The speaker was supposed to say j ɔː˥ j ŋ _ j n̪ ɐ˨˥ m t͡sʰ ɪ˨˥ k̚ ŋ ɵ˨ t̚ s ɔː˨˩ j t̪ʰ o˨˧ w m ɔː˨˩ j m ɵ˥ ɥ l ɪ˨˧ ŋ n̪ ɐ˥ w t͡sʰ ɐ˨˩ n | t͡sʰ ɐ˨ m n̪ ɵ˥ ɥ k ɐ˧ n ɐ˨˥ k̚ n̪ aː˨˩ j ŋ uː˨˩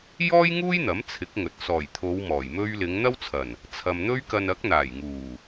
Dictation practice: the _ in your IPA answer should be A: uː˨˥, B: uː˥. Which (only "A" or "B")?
B